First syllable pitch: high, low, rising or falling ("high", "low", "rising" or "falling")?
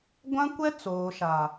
high